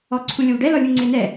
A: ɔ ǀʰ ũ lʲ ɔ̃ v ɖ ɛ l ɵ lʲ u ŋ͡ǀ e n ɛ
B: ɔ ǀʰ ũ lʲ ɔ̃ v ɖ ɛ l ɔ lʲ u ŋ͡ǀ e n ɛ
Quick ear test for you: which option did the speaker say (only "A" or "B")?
B